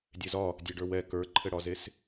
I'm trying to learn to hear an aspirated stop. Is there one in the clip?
yes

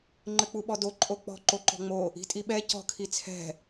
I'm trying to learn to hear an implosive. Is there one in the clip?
yes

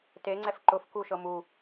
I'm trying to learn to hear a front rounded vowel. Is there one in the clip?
no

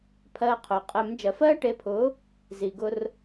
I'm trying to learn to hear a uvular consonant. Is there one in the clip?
yes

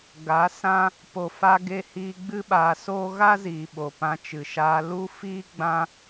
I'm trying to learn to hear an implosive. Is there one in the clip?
yes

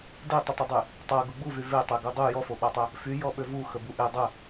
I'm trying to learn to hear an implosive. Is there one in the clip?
yes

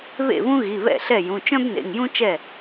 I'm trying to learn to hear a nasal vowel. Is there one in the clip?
yes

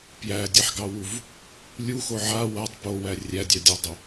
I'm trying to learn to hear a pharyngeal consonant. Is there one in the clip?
yes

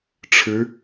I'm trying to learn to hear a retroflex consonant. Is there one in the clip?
yes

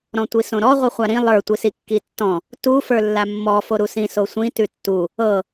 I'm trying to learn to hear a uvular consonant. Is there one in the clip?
yes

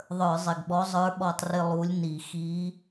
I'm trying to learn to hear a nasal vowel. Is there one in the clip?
no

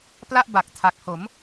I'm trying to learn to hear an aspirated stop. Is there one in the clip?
yes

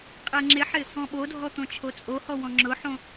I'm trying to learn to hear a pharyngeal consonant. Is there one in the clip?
yes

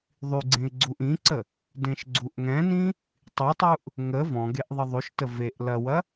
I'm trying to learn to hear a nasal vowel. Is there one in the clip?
yes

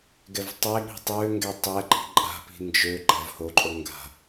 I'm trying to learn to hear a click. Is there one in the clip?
yes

